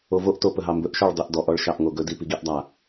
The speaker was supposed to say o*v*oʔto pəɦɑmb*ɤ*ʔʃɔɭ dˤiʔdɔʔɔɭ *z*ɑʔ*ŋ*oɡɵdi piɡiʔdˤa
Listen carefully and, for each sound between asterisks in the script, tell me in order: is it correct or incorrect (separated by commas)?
correct, incorrect, incorrect, correct